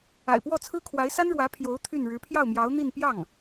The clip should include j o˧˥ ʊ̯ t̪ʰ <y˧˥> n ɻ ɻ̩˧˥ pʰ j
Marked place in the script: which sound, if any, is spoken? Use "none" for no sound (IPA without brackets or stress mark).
y˥˩